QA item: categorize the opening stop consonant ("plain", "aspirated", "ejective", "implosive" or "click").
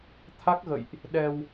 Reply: aspirated